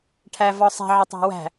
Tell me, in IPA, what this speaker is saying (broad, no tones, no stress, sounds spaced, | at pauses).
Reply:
ʈʰ æ v ɒ sˤ ɛ̤ ʕ ɪ tˤ æ̤ w æ̤